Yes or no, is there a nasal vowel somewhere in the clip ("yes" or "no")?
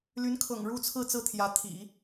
no